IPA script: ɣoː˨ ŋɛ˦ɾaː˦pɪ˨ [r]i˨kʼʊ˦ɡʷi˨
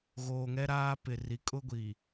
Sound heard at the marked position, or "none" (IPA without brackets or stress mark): r